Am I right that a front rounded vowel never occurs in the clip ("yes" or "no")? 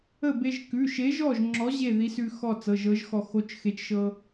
yes